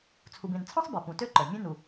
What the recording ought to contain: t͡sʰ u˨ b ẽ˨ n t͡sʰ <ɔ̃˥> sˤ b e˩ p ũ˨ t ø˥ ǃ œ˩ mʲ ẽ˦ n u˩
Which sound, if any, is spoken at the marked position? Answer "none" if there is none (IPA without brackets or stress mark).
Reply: ɔ̃˥